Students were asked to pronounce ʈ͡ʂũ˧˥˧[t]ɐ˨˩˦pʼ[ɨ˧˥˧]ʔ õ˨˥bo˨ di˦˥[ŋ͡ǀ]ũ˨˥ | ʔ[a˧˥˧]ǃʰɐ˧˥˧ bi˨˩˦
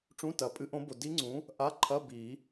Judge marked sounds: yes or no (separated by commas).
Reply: yes, yes, yes, yes